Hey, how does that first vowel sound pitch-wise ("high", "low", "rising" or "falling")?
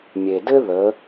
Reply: low